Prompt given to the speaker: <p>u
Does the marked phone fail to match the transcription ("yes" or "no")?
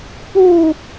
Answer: no